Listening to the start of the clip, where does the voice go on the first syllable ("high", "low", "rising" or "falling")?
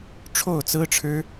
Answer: falling